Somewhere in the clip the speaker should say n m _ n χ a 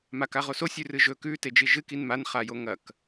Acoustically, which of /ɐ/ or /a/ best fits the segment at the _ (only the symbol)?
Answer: a